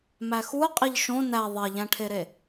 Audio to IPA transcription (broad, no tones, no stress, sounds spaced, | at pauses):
m æ x u ə̯ qʼ i ʎ ʃ õ n æ ðˤ e ʎ æ̃ ʈʰ e ɾ e